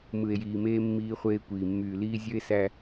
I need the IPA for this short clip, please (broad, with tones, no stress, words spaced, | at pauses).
mɯ˨e̯jiː˨meː˦ mːiː˦χʷeː˦kʷiː˨ mːyː˨liː˦ zʲø˦e̯sæ˦